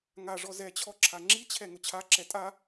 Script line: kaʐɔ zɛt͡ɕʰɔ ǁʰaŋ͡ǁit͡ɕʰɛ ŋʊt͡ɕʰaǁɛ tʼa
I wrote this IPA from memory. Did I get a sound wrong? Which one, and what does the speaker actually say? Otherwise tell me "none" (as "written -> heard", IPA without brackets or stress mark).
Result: k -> ŋ